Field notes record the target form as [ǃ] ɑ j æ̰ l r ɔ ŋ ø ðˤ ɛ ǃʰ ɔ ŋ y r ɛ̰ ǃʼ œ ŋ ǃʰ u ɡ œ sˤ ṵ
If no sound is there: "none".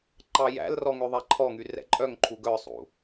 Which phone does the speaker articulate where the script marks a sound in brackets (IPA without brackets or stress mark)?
ǃ